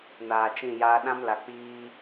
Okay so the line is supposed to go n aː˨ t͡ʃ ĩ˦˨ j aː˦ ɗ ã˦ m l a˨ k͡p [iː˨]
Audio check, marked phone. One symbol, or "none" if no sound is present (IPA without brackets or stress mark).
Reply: iː˦